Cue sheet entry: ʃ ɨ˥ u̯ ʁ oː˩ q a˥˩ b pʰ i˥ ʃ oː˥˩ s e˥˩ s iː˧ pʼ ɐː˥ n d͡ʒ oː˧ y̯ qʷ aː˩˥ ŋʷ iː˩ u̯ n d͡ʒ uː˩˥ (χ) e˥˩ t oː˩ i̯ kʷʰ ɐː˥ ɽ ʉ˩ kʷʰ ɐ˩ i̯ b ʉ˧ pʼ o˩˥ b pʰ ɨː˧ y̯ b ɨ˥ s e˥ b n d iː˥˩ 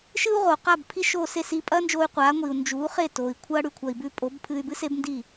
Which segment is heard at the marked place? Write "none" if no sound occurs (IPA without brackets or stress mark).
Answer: χ